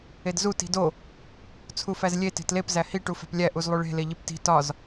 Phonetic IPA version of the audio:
edzu ti̤do | t͡sʰufæzlʲe te̤tlep zæhi ʈufæ̤plʲæ ʔuzlˠuɭe̤ leʎipti̤ tɒz

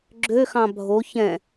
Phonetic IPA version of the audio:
ɡ͡ǁøxɑ̃ bʱo çɛ̃

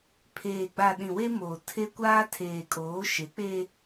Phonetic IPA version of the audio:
pʰeː˨ɡ͡ba˨ ɗĩ˨we˦moː˨ tʰe˦kʷaː˦ tʰeː˨kʼoː˨˦ʃe˨˦ k͡pe˦

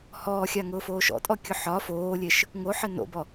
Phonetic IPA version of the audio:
hɔːxʲaŋʊː foːʃɔ̰tʼɔ kʲʊħɒ foːlʲeʃ | ŋoħɘ no̰bɔ

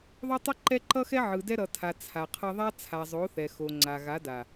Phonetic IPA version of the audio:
ðˤo˦tˤɯ˦ǃɛ˦ ǃʌ˦xɛ˦ ʕɯ˨dɛ˦ ɾʌ˨tʰa˨ t͡sʰa˨qʰʌ˦ ðˤa˦t͡sʰa˨zˤo˨˦θɛ˨ xo˨ŋ͡ǀa˨ɣa˨˦da˨

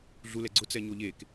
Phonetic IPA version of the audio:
ɮulɛ ɡ͡ǀʊt͡sɛɲo ʎek

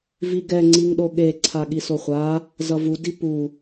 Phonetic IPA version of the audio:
viɡɛ ŋ͡ǀiŋɗoɠe ǀʰaɠisoχʷa | zʌvu dipu

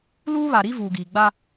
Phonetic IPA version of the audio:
luː˦βa˨ɾi˦ vuː˨ɡiː˨ɡ͡ba˦

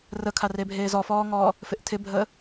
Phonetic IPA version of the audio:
rəkʰarebʱeːz ɔfɔːŋɔː | fɪʔtʰɪbʱəː

